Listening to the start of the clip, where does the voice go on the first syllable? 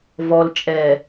low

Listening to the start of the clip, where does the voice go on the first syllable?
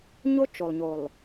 high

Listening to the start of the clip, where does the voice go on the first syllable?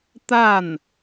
falling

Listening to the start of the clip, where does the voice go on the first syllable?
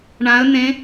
rising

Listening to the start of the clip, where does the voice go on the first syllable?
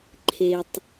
low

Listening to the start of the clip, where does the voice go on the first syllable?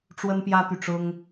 high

